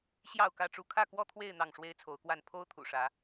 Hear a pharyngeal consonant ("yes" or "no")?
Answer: no